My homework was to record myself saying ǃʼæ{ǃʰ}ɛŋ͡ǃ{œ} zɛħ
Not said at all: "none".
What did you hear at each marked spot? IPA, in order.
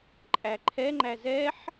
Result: ǃʰ, æ

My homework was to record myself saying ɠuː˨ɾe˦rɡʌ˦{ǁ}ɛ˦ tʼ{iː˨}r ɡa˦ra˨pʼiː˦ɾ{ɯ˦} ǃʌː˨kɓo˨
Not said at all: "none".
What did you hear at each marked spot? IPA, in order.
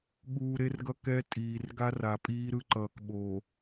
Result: k, iː˨, ɯ˦

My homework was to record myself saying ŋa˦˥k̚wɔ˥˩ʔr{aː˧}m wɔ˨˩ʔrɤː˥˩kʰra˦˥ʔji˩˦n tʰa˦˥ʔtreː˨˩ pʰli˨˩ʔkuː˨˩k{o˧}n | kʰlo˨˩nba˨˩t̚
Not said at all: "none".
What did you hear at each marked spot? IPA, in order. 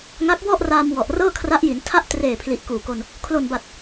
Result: aː˧, o˧

